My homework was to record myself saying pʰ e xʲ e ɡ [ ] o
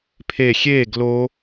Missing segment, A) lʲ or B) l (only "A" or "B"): B